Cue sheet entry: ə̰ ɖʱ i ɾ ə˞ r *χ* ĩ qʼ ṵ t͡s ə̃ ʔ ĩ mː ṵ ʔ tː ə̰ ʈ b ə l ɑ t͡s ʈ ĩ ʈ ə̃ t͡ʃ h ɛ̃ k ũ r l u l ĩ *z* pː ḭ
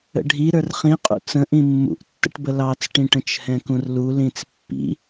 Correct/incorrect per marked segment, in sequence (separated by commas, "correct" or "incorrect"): correct, incorrect